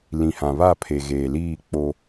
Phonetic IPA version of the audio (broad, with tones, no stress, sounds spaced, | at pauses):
l ĩ˨ h ã˨ β a˦˨ pʰ e˨ ɣ eː˨ l iː˦˨ k͡p o˦